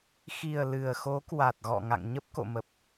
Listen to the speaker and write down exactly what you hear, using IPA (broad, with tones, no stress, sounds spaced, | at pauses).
x i˨˩ ə̯ l ɨ˨˩ ə̯ x o˨˦ k w a˨˩ t̚ ɣ ɔ̰˧˨ ŋ a̰˧˨ ŋ ɲ ə˦˥ p̚ k o̰˧˨ m ə˨˩ p̚